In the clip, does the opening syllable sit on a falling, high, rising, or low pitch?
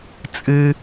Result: high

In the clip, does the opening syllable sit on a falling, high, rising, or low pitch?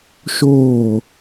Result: falling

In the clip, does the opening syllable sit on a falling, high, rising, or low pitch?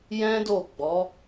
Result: high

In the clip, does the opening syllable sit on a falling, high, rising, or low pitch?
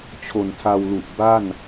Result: low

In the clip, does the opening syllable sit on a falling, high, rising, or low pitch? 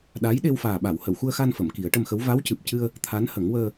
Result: rising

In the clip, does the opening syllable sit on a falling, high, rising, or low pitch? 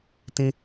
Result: high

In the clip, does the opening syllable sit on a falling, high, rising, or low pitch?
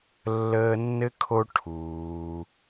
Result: high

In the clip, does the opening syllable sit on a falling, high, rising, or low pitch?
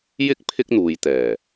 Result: high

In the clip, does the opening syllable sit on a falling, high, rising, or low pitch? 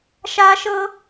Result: high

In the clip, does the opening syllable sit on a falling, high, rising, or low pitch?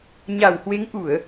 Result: low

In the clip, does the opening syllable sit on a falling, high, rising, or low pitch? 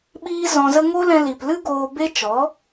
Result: high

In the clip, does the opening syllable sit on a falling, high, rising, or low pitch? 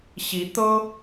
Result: rising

